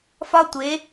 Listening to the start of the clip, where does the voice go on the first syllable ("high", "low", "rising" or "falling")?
high